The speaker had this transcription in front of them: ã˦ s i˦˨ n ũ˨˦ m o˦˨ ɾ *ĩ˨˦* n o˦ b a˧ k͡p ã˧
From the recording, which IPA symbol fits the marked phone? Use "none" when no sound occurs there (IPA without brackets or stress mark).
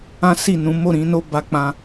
ĩ˨˦